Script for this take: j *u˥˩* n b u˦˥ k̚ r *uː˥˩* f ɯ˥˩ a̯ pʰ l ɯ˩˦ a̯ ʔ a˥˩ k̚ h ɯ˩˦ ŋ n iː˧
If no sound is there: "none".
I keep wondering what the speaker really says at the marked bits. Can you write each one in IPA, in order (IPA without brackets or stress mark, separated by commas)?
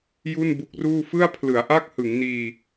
u˥˩, uː˥˩